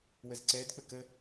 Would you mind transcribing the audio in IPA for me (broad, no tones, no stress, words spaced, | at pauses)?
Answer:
wəzǀɛdk͡pə kə